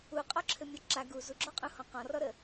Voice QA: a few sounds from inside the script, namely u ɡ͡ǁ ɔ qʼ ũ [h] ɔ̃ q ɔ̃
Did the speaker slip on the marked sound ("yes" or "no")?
no